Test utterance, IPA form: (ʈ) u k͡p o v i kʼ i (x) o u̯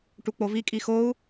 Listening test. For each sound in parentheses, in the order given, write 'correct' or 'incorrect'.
correct, correct

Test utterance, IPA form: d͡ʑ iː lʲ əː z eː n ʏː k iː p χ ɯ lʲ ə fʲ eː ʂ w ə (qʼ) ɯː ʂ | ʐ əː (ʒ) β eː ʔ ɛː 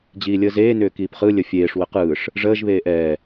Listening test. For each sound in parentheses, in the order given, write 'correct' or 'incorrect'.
incorrect: q, correct

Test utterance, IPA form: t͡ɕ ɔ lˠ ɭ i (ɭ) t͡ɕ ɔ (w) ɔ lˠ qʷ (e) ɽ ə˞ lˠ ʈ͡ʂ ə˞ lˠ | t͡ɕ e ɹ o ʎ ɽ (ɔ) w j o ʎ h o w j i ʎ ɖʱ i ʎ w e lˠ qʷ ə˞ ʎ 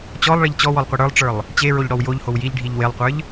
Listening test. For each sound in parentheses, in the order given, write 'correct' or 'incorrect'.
incorrect: ʎ, correct, incorrect: i, correct

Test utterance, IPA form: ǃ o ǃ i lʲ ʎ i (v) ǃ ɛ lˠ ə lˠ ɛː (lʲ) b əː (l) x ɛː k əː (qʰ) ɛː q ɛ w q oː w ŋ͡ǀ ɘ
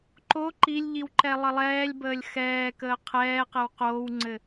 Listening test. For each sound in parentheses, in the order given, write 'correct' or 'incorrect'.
incorrect: w, correct, incorrect: lʲ, correct

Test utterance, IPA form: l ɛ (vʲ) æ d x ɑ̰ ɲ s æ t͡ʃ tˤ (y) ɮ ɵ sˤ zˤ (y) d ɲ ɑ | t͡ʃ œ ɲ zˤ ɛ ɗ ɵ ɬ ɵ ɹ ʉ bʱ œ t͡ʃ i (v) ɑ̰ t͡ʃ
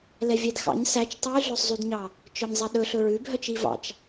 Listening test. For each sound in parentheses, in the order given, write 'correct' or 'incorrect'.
correct, correct, correct, correct

